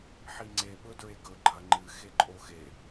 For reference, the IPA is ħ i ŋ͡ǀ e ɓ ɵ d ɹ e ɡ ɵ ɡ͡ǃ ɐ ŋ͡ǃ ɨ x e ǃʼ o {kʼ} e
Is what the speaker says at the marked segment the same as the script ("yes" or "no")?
no